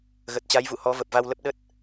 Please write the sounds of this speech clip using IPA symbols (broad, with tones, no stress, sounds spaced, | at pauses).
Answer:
ɣ ə˨˩ t̚ t͡ɕ a˨˦ j v ṵ˧˨ h ɔ˨˦ v ə˨˩ p̚ v a˧ w l ə˦˥ p̚ ɗ ə˦˥ t̚